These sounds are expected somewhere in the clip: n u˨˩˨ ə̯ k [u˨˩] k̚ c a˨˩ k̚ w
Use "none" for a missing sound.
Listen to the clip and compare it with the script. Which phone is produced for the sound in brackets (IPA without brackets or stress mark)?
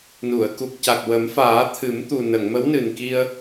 u˨˩